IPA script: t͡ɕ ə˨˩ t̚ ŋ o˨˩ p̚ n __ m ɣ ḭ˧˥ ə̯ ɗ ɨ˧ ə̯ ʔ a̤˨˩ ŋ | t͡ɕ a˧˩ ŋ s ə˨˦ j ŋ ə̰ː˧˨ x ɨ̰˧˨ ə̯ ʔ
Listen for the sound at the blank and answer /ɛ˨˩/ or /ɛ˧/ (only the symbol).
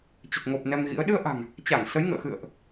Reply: ɛ˧